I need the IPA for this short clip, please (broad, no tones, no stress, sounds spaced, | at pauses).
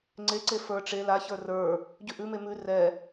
ŋ͡ǀ e ǀ e f ə˞ ʈ͡ʂ e l a ç ə˞ r ə˞ | ɟ ʉ ʔ ʉ m e m ʉ r ɛ